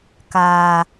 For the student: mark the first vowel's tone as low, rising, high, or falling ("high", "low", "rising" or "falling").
low